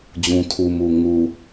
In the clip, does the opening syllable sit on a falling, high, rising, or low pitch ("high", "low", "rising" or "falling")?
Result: low